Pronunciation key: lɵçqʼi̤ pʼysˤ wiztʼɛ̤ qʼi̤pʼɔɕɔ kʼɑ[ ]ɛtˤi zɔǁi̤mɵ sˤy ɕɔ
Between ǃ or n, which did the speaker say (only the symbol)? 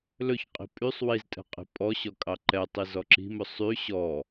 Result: ǃ